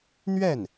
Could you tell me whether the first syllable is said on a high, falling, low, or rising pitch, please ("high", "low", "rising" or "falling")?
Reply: falling